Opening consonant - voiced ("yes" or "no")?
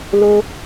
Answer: yes